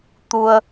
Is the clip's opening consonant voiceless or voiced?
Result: voiceless